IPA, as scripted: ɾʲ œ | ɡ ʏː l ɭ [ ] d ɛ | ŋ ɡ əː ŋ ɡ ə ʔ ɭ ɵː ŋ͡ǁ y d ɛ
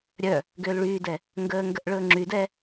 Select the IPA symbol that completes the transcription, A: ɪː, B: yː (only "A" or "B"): B